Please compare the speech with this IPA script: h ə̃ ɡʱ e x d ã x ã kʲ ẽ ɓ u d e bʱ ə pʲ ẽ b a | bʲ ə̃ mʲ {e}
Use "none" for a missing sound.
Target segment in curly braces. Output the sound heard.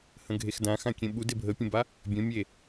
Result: e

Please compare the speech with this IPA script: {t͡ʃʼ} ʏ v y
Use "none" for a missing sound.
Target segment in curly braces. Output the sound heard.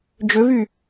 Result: d͡ʒ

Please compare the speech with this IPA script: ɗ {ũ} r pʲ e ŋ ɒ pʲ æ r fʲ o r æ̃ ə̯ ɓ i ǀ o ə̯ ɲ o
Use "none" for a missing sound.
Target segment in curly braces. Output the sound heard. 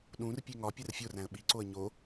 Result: ũ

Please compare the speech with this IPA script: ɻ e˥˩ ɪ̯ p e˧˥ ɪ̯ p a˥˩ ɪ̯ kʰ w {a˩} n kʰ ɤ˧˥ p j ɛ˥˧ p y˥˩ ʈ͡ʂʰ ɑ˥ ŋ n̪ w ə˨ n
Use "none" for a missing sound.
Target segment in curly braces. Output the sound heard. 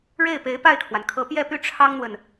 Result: a˩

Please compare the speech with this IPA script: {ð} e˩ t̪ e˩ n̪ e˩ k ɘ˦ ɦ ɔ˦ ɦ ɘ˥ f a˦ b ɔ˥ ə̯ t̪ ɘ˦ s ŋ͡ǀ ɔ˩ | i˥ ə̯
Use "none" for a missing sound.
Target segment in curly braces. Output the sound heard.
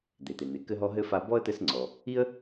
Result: d̪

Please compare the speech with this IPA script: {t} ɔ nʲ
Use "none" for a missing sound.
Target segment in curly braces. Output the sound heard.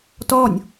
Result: t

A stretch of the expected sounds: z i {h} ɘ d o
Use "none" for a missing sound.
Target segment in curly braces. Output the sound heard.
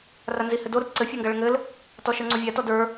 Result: h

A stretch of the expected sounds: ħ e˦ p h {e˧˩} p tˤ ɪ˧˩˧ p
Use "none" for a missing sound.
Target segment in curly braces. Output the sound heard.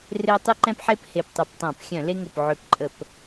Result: e˧˩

